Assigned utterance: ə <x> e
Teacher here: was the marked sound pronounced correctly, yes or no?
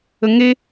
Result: no